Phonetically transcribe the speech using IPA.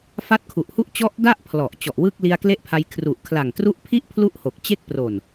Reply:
f a˦˥ t̚ kʰ u˨˩ ʔ h u˥˩ ʔ t͡ɕ ɔ˦˥ ʔ d a˥˩ ʔ pʰ l ɔ˨˩ ʔ t͡ɕ ɔ˨˩ ʔ w ɯ˥˩ k̚ l i˧ a̯ k l e˦˥ ʔ pʰ a˧ j kʰ r u˨˩ ʔ kʰ l a˨˩ ŋ t r u˦˥ ʔ pʰ i˥˩ ʔ pʰ l u˥˩ ʔ h o˨˩ k̚ t͡ɕ e˥˩ k̚ p r o˨˩ n

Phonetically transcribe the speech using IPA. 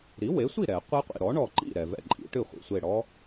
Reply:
ɾ i˩˥ w e˩˥ sʷ i˥˩ ɾ ɛ˨˩˦ qʷ i˦˥ qʷ ḭ˩ ɾ ɔ˩˥ ɳ ɔ˧˩ ǃ ḭ˥˩ ɾ ɛ˩ v ɛ̰˧˩ ǃʼ ḭ˩˥ ʈ ɨ˥˩ χʷ ḭ˩ sʷ e˧˩ ɽ ɔ˦˥

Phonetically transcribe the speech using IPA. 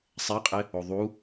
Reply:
sˤ ɛ qʼ ɪ | o ðˤ u

